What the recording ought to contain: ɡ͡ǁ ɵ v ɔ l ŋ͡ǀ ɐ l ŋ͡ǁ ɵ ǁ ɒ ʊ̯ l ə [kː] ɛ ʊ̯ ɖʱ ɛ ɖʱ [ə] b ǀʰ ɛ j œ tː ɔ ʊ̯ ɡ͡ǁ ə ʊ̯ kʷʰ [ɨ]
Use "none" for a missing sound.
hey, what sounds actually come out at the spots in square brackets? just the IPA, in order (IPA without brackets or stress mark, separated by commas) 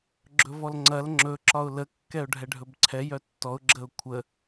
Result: kː, ɵ, ə